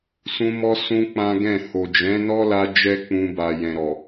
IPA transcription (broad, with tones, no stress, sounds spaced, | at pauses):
s ũ˧ m ɔ˧ s ũ˦ k͡p ã˦ ɡ ɛ̃˦˨ h o˨ d͡ʒ ɛ̃˨˦ n ɔ˦ l a˧ d͡ʒ ɛ˦ k͡p ũ˧ b a˨ j ɛ̃˨ ɾ ɔ˨